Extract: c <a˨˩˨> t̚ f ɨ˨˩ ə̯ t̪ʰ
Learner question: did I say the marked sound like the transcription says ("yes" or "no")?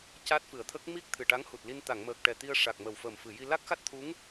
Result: no